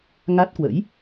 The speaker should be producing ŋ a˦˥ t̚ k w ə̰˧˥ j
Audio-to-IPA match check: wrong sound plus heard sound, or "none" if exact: none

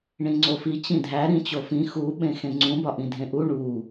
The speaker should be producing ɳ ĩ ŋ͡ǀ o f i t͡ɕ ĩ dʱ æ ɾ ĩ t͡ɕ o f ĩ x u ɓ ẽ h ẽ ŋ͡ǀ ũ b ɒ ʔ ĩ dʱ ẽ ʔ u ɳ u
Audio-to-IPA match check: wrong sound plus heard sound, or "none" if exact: h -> x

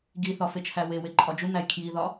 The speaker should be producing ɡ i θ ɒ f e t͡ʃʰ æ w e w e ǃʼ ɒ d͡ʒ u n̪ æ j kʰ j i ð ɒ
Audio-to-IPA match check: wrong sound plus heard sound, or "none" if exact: none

